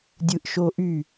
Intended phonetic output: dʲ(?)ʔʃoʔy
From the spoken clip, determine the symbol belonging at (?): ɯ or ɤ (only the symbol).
ɯ